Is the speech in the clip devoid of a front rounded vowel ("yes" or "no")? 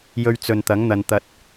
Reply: yes